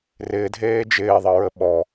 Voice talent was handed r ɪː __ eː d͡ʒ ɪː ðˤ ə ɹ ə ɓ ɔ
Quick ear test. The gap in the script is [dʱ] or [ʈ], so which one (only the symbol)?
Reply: dʱ